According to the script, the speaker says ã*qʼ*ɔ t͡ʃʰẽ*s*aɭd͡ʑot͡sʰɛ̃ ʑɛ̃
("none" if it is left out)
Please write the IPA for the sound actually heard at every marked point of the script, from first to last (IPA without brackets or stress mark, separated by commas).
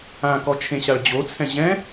k, ɕ